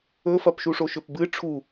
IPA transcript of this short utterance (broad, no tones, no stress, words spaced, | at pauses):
ɵfɐp ʃuʂoʃɵpbɨ ʈ͡ʂʰu